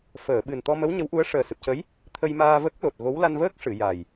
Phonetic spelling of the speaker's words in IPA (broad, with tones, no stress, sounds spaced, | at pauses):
f əː˨˩˨ ɓ ɨ˨˩ n t̪ ɔ˧ m ə˧˥ w ɲ ə˧˥ w ʔ u˧˥ ə̯ ʂ əː˨˩ s ɨ˨˩ p̚ c ə˧˥ j | t̪ʰ ə˧ j m aː˧ v ə˦˥ k̚ l o˨˩ t̚ ɣ o˧˥ w l a˧ n v əː˦˥ k̚ ʂ ɨ˨˩˨ j a˨˩ j